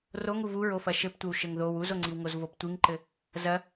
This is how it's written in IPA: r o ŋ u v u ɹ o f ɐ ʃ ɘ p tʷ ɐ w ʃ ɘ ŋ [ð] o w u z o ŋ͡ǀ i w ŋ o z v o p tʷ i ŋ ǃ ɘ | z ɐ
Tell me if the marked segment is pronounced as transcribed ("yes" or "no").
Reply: yes